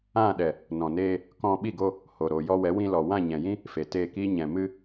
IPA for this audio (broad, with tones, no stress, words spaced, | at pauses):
ã˦˨ɗɛ˨ | nɔ̃˨neː˧ | kɔ̃˧ɓi˦˨ɡo˧ | ho˨ ɾo˨ jɔ˧wɛ˨˦wĩ˧ lɔ˨wã˦˨ɲɛ̃˨jĩ˦ | fe˨te˦˨ki˦ ɲɛ̃˨ mɨ˧